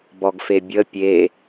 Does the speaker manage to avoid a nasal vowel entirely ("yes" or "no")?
yes